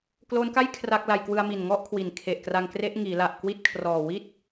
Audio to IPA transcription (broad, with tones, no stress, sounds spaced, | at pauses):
k l oː˦˥ n k a˥˩ j kʰ r a˥˩ k̚ l a˧ j k w ɯ˧ a̯ m i˨˩ n ŋ ɔ˥˩ ʔ kʰ w i˨˩ n kʰ e˨˩ ʔ k r a˧ ŋ k r e˦˥ ʔ ŋ iː˩˦ l a˨˩ ʔ k w i˦˥ t̚ kʰ r ɔː˨˩ w i˥˩ t̚